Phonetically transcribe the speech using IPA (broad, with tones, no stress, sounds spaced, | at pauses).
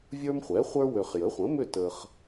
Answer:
vʲ ə˞˦ m χʷ ɛ˩˥ χʷ ə˞˦ w ø˨ χ j ə˩˥ χʷ ə̃˩˥ m ʏ˦˨ t ə˨ χ